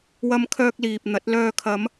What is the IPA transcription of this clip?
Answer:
wɐ˧mkʰœː˧k̚liː˨p̚n̪ɐ˨˥t̚ lœː˨kʰɐ˨˧m

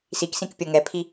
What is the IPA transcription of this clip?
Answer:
siksĩkpʲɤ ŋɛpʰi

